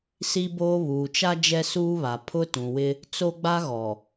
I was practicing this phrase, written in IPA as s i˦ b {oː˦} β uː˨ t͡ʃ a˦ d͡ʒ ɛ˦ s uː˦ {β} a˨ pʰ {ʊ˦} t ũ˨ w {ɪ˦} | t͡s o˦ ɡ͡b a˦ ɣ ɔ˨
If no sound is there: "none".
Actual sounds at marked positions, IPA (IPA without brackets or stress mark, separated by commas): oː˦, β, ʊ˦, ɪ˦